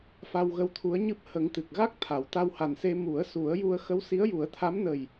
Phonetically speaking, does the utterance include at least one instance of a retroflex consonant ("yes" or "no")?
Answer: no